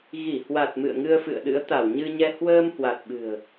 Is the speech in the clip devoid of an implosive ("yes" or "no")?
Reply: no